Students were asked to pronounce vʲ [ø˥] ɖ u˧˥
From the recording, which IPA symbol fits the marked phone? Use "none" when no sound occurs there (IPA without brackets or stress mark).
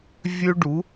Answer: ø˥